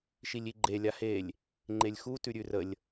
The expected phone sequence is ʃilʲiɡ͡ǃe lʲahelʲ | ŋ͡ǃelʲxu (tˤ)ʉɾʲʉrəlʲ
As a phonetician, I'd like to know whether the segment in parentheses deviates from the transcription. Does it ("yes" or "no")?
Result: yes